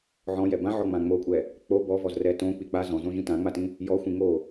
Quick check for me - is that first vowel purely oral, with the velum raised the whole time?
no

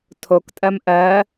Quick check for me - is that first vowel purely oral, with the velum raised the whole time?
yes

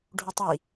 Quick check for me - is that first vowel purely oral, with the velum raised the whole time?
yes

